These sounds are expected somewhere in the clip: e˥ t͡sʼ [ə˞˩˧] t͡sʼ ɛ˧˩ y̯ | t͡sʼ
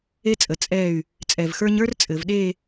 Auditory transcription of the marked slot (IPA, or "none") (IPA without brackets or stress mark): ə˩˧